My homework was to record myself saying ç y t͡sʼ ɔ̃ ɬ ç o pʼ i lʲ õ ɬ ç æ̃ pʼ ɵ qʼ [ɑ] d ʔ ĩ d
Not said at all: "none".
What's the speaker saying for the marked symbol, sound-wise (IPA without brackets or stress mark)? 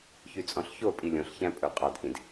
ɑ